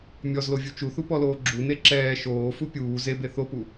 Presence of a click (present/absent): present